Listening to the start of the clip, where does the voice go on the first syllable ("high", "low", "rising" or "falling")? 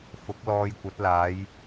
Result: rising